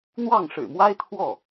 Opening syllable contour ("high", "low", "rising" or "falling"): falling